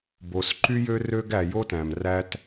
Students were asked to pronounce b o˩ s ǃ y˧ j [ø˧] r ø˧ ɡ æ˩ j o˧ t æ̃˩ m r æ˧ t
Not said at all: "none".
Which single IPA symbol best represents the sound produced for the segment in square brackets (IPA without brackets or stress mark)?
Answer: ø˧